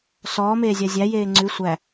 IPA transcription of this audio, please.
s ɔː m eː zʲ a zʲ æ j eː ŋ͡ǀ ʉ sʷ æ

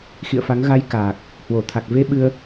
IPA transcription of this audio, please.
x ḭ˧˨ ə̯ f a˨˦ ŋ ɣ a˧ j k aː˨˩ k̚ | h w o˧˩ t̪ʰ a˨˩ k̚ v e˧ ɓ ɨ˧ ə̯

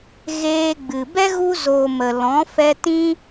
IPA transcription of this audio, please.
ɣ eː˧ ɡ͡b ɨ˨ b ɛ˦ ɣ u˧ z oː˨ m ə˨ l ɔ̃˨˦ f ɛ˧ t ĩ˧

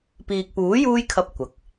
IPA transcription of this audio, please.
p iː˨ k̚ p uː˨˥ j uː˥ j kʰ ɐ˧ p̚ kʷ ɐ˨˥ k̚

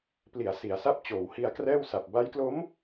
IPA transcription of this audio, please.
p l i˩˦ a̯ s i˩˦ a̯ s a˦˥ p̚ t͡ɕ oː˩˦ w h i˧ a̯ k r ɛː˥˩ w s a˨˩ p̚ b a˦˥ j k l o˦˥ m

